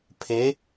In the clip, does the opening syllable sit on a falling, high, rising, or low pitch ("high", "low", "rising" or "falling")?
rising